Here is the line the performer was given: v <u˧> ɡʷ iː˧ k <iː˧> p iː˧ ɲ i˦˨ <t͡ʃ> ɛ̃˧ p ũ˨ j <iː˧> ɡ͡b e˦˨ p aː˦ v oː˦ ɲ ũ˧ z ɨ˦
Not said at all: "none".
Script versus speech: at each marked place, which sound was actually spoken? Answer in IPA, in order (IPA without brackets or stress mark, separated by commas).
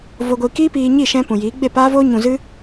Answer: o˧, iː˦, ʃ, iː˨˦